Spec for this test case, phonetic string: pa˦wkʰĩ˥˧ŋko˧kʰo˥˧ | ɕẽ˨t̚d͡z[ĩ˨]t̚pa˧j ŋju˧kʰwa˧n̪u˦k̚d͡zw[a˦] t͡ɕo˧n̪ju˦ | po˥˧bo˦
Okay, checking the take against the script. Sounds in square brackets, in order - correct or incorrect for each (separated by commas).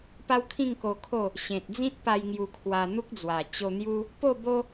incorrect, incorrect